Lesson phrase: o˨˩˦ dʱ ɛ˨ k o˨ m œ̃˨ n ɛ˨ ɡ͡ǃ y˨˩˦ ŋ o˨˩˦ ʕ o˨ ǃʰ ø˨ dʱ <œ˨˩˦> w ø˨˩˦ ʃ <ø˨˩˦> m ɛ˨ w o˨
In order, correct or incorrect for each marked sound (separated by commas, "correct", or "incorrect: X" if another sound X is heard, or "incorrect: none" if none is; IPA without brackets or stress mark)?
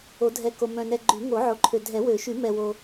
incorrect: ɛ˨˩˦, incorrect: y˨˩˦